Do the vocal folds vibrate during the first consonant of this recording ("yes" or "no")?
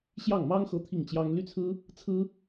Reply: no